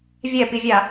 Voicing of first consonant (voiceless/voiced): voiced